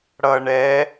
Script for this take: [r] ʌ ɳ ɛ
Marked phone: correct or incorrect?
incorrect: ɽ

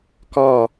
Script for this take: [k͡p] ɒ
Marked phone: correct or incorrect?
incorrect: k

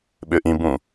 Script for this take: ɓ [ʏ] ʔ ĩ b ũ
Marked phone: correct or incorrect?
correct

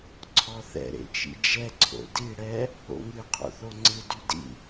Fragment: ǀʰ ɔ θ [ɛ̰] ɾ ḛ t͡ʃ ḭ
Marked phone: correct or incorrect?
correct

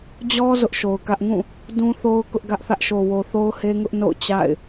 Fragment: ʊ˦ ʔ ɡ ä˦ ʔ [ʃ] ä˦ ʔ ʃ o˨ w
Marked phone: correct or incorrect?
incorrect: θ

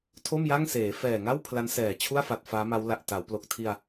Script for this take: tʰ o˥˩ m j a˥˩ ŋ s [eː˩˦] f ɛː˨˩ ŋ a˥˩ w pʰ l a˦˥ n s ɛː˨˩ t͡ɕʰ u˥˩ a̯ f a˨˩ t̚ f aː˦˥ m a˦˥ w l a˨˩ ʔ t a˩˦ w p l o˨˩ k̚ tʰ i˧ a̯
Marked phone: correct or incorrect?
correct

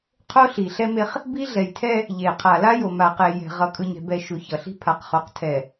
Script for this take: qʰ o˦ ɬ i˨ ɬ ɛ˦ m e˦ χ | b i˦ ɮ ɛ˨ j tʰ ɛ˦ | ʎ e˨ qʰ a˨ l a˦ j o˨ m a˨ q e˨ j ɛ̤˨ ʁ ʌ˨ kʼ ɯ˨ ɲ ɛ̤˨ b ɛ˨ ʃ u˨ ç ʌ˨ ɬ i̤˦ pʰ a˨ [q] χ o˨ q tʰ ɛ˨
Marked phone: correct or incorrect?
correct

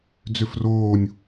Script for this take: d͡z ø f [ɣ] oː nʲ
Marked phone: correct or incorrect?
incorrect: r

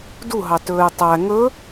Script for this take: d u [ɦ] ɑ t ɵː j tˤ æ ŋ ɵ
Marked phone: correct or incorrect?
correct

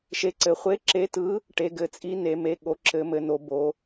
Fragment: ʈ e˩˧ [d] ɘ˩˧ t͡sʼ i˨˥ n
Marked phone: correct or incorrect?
incorrect: ɡ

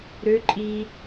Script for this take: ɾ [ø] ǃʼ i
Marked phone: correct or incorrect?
correct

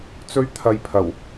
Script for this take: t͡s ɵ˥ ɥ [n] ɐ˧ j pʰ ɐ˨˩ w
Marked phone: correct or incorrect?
incorrect: t̪ʰ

